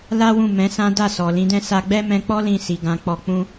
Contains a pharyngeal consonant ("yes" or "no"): no